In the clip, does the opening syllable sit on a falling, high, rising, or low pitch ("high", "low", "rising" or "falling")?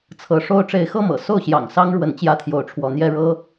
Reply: rising